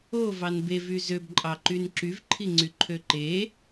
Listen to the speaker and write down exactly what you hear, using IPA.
o v ɑ n b e v y z ø b ǃʼ ɑ ǃ y n ǁ y v ǃʰ i ŋ͡ǀ y ǃʰ ø ǃ e

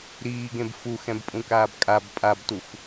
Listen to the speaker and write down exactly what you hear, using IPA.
ɾ iː ɡ ẽ b f u x ɛ̃ b pʼ ũ k aː b kʼ a b pʼ a b t u f

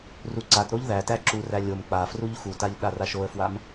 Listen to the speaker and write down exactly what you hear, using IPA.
r u ǀ a t ɾ o ʎ ð æ t æ ǁ u r æ lʲ o m k͡p a f r u ʎ x u t a ʎ ɗ a r a ʃ o ə̯ f w a m

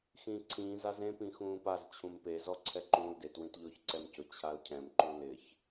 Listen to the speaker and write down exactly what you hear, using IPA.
x ĩː ǀʰ ĩː z a z ẽ p ĩ x ũː p a z t͡ɕʰ ũ m p e z ɔ ǀʰ ɛ ǃ ũː l d e t w ĩ t ʎ ʊː ç ǀ ɛ m c ʊ t͡ɕʰ a l cʰ ɛ̃ m ǃ u l ɪ ç

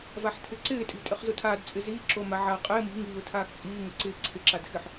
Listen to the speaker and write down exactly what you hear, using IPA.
v a ħ tʰ ɪ ǀ ɪː tʼ i̤ tʼ ɪ χ z u tʰ aː d t͡sʼ ɪ z iː ǁ o m a ʕ aː qʼ ɪː m i̤ ŋ iː ʊ̯ tʰ aː x t͡sʼ iː ŋ ʊ ǀ ɪː ǀʰ ɪ ǁ a d x ɪ ħ

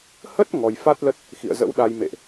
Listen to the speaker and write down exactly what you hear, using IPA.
h ə˦˥ t̚ ŋ ɔ˧ j f a˦˥ t̚ l ə˦˥ t̚ | x ḭ˧˨ ə̯ z ə̰˧˥ w ɗ a˧ j m ḛ˧˨ ʔ

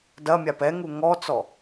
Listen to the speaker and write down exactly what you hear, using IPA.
d ɐ mʲ a p ɛ ŋ u ŋ ɔ t͡s ɔ

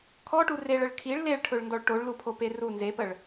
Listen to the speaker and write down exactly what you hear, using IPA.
kʰ ɔ ʈ u r e ɭ ə ɭ kʰ i ɭ l e ɭ ʈʰ ɵ ɭ n d ɔ ɭ ʈ o ɭ l u pʰ o p e r u n z e p ə ɭ

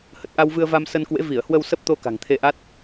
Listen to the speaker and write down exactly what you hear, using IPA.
h ə˨˩ t̚ ʔ a˧ w v ɨ˧ ə̯ v a˧ m s ə˧ n k w ḛ˧˥ v i˧˩ ə̯ h w ə˧ w s ə˦˥ p̚ t̪ o˧ k a̤˨˩ ŋ t̪ʰ e˧ ʔ a˦˥ t̚

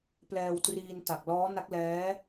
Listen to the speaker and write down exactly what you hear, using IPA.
p l ɛː˧ w t r iː˧ n t a˨˩ k̚ l ɔː˦˥ n a˦˥ k̚ l ɛː˦˥

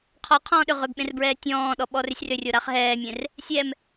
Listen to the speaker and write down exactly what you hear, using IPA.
qʰ ɔ qʰ ɔ̃ː ɗ ʏ ʁ ʏ b ɓ ẽ r b ɹ ɛː tʲ ɔ̃ː ɗ ɔ ɓ ɔ r ʏ sʲ r ʏ rʲ o ɾ a χ ɦ ɛː mʲ ẽ r | sʲ ɛ m

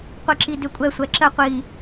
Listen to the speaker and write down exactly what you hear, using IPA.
qʷ i ǁ i d ʏ kʷʼ ɛ sʷ ɛ ǁ ə qʷ i

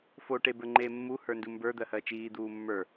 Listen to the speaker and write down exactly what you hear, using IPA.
f o ʈ e b ə˞ ŋ͡ǃ eː mː u h ə˞ n d u m b ə˞ d̪ ɜ h ɜ t͡ʃ iː d̪ uː mː ə˞

